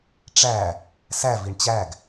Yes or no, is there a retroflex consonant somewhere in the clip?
yes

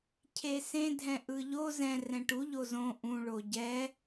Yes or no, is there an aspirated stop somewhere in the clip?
yes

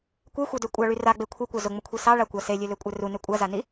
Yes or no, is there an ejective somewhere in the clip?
yes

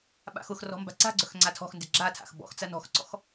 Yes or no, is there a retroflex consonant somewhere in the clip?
no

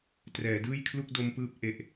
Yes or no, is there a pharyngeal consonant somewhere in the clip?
no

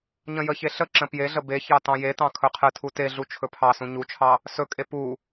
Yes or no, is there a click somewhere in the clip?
yes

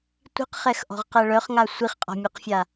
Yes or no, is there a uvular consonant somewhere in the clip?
yes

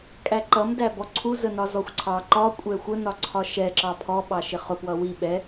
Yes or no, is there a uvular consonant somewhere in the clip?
yes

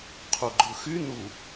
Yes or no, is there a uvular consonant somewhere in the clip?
yes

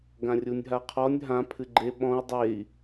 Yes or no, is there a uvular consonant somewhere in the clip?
yes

